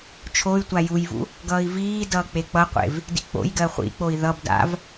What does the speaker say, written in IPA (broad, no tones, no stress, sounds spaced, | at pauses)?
t͡ʃʰ o y̯ tʷ a j u j v ṵ | ɡ ʌː i̯ v iː d ʌː k͡p e k͡p ʌ qʷ ḛ v | d ḭ k͡p o̰ j ɡ ɜ χʷ ḭ k͡p o i̯ ð ʌ b d a̰ v